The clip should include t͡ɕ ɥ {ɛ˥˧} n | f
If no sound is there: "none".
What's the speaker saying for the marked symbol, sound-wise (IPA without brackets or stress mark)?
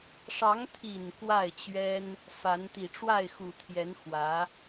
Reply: ɛ˥